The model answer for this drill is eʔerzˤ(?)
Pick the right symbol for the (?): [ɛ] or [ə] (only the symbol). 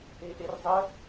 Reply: ə